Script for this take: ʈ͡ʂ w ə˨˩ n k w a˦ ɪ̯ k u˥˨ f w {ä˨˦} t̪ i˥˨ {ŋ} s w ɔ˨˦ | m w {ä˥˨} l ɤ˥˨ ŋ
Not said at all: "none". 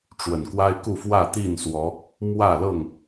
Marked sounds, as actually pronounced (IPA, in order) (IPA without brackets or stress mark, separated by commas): ä˥˨, n, ä˥˨